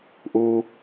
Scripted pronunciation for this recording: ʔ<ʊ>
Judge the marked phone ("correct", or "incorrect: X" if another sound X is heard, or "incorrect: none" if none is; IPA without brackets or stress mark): incorrect: u